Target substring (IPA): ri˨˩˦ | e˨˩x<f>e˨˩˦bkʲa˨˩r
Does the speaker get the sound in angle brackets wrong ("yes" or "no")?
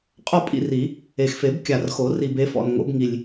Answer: no